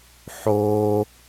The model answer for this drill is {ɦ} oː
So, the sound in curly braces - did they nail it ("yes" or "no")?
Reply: no